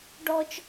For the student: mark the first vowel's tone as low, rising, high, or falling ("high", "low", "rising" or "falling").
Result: high